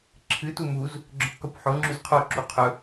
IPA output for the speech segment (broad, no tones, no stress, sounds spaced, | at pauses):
ǁʰ ɨ t u m u z | ɡ͡ǁ ɵ q k u p ħ o ŋ͡ǁ ʉ z qʰ o ǁ u qʰ ɵ